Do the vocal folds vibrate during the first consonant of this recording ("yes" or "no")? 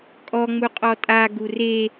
no